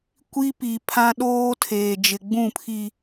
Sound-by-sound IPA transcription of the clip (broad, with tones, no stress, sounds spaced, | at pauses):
kʷ i˦ p i˨ pʰ ã˦ ɗ oː˦ tʰ eː˨ d͡ʒ ɪ˨ ɡ͡b ũ˦˨ pʰ i˨